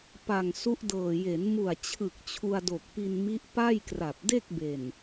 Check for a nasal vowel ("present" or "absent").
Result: absent